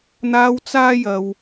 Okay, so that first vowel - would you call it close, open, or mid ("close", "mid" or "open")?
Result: open